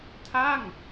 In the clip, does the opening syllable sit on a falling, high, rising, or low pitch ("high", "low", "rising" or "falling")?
falling